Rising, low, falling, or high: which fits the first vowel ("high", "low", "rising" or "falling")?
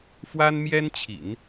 high